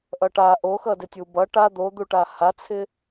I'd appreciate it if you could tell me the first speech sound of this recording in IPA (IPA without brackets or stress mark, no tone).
ʔ